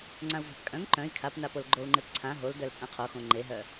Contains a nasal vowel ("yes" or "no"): yes